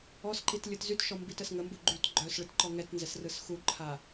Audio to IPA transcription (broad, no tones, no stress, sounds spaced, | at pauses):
ɔ s ǃ i t lʲ ɯ t z y t ʃ ɔ m b i t ə s ŋ ə m b u ɡ͡ǃ y t ɡ͡ǃ œ s ɭ ɯ t ǃ ɔ ŋ ɛ t n z ɛ s r ɯ s x u ǃʰ a